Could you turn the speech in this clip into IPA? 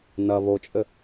n ɐ β o t͡ʃʼ ɘ

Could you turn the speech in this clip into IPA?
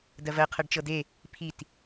d ɜ v ɜ qʰ ɜ ɖ t͡ʃ ɤ d e | pʰ i t

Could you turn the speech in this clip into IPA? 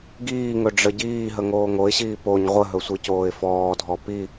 ɡ iː ŋ ɵ ɖ͡ʐ ə ɟ iː ɦ ə ŋ oː ŋ o ɪ̯ ɕ iː p o ɲ ʁʷ ə ɦ ɵ sʷ i c oː ɪ̯ f ɔː dʱ ɔ p i

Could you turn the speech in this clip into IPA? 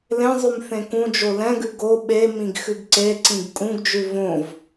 l ẽ zˤ ʉ m θ ẽ k ũ d͡ʒ o l ɛ̃ ɡ ʉ ɡ o ɓ e m ĩ ɡ x ʉ ɡ ǀ e ǀ ĩ ɡ kʼ ũ ɡ d͡ʒ ʉ v õ v

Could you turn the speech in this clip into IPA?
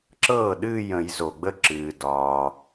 ǁ ɤː˥˩ ɗ ɨː˥˧ j ə̃˨˩˦ j z o˩ ɡ͡b ə˥˩ ǁ ɨː˩ d ɒː˩

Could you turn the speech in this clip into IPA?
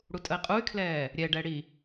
ɽ u tʼ ə i̯ qʼ u y̯ kʰ l ɛː | ɾʲ ɛ ɖ ɛ ɽ i

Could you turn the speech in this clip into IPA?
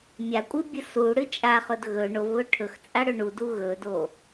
mʲ a kʷʼ ɨ bʲ ɨ s u ɽ ɨ t͡ʃʼ a χ ɵ d ɣ ɵ ɳ o v β ɵ ʈʰ ɵ x t͡sʼ a ɽ ɵ ɳ u d u ɣ ɵ d o

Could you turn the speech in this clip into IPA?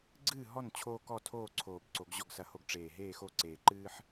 ɡ͡ǀ ɨː˥˨ ɦ ɔ˥˨ n t͡ɕʰ o˦ k ɔ˥˨ tʰ oː˥˨ ǀʰ oː˨˩ b ǀ o˨˩˦ ɡ ʑ ɔ˥˨ ɡ s ɐ˦ h o˥˨ ɡ ʈ͡ʂ eː˨˩ ɦ eː˥˨ x o˥˨ ǀ eː˨˩ ǃ ɨː˦ ħ

